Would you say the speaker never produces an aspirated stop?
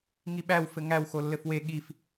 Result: yes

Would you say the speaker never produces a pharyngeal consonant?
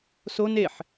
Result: no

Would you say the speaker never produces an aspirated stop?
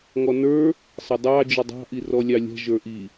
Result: yes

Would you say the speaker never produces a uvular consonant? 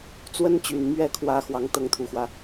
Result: yes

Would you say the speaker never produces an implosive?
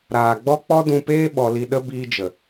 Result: no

